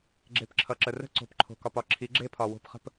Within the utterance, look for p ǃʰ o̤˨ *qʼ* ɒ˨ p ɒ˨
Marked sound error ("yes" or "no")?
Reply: yes